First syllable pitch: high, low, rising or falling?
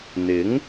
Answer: rising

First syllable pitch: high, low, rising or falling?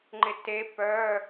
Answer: rising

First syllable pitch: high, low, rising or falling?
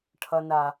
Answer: low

